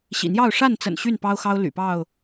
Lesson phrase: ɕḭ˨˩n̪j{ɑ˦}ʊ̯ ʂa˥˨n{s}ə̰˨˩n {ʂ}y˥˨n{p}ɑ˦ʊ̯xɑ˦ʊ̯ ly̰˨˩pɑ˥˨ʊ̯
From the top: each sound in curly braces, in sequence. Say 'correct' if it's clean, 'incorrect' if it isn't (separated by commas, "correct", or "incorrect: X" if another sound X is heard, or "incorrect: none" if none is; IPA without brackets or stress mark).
incorrect: ɑ˥˨, incorrect: t͡s, incorrect: ɕ, correct